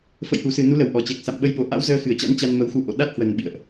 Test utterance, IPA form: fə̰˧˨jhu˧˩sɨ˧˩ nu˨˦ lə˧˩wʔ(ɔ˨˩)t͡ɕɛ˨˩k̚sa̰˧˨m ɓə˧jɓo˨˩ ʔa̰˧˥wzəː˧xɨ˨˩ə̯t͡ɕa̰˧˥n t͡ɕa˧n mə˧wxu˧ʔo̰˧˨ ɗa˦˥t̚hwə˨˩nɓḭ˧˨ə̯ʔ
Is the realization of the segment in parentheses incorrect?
no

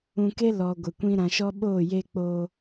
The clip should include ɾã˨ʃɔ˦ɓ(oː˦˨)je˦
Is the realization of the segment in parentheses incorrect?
no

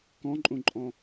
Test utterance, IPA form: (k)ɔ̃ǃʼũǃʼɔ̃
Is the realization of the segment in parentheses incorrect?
no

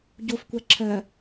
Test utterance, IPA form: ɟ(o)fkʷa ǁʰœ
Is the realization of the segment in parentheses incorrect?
no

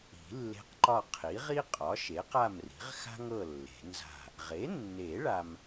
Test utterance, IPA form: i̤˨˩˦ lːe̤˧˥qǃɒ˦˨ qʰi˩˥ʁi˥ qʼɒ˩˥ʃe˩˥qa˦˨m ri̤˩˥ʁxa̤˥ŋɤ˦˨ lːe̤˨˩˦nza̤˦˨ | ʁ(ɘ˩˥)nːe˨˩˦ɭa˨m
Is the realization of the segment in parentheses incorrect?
yes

